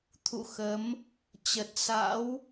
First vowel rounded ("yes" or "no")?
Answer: yes